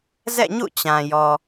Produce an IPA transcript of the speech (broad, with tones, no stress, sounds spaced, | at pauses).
z ɛ̰˦˨ ɲ ṵ˦˨ t͡ɕ ã˨ j ɔ˨